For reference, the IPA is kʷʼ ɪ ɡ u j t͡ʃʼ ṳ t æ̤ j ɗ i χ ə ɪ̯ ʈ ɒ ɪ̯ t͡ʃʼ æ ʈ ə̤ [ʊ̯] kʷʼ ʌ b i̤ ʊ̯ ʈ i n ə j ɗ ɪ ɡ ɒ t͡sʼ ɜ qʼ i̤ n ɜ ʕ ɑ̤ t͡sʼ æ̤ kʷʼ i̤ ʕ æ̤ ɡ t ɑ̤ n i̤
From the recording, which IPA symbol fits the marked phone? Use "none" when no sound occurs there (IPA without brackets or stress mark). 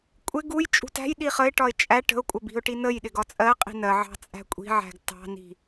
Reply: ʊ̯